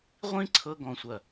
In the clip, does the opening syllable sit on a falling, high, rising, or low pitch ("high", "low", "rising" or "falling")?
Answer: high